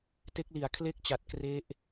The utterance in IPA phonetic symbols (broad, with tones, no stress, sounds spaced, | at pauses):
t e˦˥ k̚ l i˩˦ a̯ kʰ l e˥˩ k̚ t͡ɕ a˨˩ t̚ k r e˦˥ ʔ